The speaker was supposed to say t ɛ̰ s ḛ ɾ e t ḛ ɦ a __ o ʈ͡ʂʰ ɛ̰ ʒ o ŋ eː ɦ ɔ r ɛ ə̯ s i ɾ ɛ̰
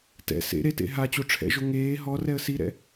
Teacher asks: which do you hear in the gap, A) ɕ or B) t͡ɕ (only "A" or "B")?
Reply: B